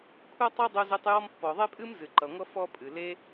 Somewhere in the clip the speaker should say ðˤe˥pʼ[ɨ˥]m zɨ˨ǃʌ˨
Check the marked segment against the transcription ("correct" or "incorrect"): correct